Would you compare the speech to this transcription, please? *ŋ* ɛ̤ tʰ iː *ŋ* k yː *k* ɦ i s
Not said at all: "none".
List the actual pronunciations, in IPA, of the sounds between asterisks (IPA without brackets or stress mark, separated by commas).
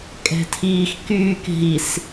kʼ, x, k